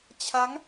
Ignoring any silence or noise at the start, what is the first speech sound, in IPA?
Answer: t͡ɕʰ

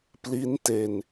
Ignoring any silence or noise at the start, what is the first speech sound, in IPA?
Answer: p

